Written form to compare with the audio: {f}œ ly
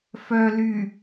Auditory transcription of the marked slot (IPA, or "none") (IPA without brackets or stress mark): f